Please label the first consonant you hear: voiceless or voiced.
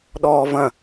voiced